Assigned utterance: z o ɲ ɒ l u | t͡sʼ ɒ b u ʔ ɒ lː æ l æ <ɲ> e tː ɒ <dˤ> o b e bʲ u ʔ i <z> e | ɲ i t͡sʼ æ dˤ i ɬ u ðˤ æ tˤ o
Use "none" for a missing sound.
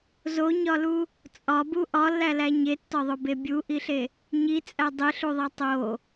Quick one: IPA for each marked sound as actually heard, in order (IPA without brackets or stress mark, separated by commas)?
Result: ɲ, ðˤ, ɬ